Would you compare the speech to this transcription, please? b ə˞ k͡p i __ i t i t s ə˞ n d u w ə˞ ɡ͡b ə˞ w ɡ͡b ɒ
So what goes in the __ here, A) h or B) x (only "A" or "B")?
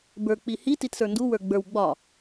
A